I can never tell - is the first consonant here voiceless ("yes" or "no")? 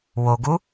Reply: no